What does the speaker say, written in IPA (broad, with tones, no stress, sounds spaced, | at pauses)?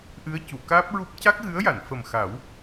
ʔ ɨ˧˥ ə̯ c u˨˩˨ k aː˦˥ p̚ ɹ u˦˥ p̚ c a˦˥ k̚ ɣ ɨ˧˥ ə̯ j a˨˩˨ n f ə˨˩ m x a˨˩˦ w